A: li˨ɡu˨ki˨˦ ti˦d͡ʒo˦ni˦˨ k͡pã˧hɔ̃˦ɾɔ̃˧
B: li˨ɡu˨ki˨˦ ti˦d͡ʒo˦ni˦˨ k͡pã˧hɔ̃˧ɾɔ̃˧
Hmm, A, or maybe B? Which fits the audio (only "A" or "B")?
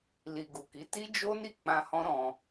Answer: A